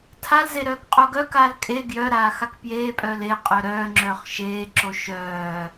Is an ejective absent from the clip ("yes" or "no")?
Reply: no